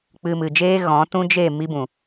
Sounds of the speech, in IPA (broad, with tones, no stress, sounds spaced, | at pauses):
k͡p ɨ˧ m ɨ˨ d͡ʒ eː˦ ɣ ɔ̃˨˦ t ũ˦ d͡ʒ e˦˨ m i˦ b ũ˨